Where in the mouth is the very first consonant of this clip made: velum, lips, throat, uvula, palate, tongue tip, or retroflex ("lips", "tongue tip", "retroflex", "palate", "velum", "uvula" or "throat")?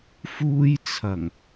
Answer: lips